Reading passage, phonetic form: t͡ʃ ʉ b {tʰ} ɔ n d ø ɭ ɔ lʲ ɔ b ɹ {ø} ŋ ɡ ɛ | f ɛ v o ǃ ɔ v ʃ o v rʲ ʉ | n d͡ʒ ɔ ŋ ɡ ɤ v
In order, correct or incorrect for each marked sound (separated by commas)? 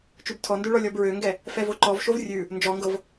correct, correct